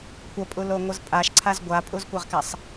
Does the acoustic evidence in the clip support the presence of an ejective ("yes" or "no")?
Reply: yes